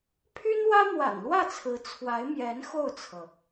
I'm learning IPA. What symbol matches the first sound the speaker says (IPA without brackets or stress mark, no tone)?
pʰ